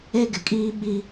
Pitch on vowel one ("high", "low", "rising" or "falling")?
high